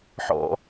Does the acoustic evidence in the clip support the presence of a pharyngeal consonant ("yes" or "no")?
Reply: yes